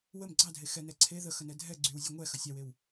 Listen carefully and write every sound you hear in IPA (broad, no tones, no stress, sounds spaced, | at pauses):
w ə m ɡ͡ǀ ɑ dʱ e x ɛ n ɛ ǀʰ e ð ə x ə n ɛ dʱ ɛ ɡ͡ǀ y w zʲ e ŋʷ ɛ x ə sʲ ɑ w e w